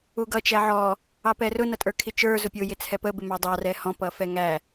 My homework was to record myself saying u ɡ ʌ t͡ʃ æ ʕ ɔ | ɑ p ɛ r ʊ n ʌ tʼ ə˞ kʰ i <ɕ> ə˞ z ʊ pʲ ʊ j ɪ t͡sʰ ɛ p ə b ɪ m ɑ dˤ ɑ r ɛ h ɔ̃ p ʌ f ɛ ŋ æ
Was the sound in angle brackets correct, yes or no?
no